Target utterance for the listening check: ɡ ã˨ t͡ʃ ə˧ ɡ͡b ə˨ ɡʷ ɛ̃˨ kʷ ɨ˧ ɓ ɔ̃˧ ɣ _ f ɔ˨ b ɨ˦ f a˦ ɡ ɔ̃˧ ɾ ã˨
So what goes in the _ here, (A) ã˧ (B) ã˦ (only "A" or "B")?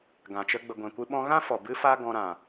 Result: B